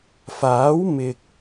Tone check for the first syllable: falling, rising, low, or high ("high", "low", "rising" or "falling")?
rising